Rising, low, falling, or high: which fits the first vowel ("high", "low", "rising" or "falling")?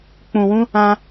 low